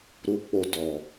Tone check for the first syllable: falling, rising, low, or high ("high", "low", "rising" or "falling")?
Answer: high